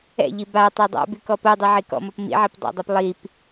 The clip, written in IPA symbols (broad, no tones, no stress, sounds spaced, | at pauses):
ɛ̰ ʎ i b a tˤ e dˤ a̰ b y k ɔ p o dˤ i ʕ i k ɔ̰ m ɔ p m ḭ ʕ i p dˤ a̰ dˤ a p lˠ i p